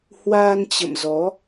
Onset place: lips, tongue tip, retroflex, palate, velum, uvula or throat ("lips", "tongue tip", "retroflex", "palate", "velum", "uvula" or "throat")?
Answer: throat